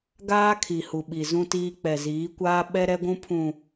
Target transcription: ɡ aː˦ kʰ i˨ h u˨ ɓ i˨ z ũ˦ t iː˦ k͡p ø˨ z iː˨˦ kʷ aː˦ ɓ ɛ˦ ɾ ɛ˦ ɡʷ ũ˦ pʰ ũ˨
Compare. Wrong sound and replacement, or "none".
ø˨ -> ɛ˨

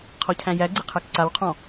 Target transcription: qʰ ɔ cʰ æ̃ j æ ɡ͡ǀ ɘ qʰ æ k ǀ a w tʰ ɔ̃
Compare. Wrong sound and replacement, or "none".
tʰ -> qʰ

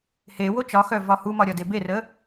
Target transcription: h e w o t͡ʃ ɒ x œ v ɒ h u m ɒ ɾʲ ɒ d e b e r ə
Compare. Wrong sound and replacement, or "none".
none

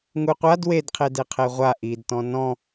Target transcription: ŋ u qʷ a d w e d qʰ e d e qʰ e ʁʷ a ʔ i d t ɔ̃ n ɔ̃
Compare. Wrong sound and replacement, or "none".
none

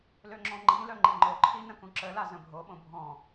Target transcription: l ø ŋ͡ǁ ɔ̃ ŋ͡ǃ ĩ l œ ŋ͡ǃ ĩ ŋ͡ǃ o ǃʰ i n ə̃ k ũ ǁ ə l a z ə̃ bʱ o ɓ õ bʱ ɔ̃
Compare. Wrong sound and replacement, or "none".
none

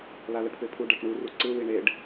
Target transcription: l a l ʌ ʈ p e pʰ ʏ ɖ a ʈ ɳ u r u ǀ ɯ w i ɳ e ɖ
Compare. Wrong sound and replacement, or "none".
ʏ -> u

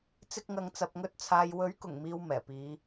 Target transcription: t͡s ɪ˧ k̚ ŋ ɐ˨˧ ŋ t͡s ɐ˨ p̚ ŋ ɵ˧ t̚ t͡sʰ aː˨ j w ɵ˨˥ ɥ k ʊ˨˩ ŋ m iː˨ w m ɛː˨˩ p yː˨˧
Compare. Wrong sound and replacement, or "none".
yː˨˧ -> iː˨˧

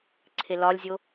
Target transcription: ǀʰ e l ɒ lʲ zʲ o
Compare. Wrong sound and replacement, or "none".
none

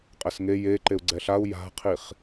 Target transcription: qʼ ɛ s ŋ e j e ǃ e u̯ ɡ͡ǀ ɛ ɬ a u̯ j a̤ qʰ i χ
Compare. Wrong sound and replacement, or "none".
none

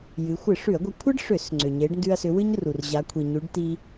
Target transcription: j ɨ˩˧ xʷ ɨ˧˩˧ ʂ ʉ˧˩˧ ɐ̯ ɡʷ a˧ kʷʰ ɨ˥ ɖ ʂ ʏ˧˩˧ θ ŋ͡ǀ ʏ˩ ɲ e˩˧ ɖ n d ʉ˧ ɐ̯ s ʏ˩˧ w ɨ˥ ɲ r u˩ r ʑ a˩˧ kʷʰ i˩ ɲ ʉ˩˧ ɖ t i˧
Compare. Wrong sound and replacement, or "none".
θ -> s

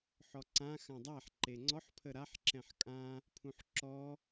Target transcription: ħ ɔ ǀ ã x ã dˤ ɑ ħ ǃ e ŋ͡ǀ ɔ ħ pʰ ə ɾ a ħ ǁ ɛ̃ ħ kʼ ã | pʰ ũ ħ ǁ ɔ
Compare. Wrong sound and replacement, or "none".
ɑ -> a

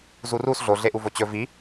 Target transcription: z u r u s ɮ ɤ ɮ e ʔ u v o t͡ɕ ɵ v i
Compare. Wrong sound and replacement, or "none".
ɤ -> o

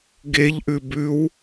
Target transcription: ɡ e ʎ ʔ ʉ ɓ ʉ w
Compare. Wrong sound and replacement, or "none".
ɓ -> b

